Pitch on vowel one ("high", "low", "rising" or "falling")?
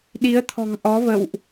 rising